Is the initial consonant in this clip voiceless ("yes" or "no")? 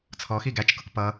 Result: yes